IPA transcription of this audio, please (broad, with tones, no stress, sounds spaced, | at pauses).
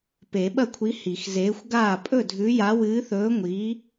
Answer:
p e˨˩˦ ɓ ɐ˥˩ kʷʰ i˨˥ h i˨˩˦ x z eː˨˥ xʷ ɡ aː˥˩ pʼ ɵ˥˩ dʱ ʉ˨˥ j a˨˥ w ɨː˨˥ θ ɵː˨˥ ŋʷ iː˨˥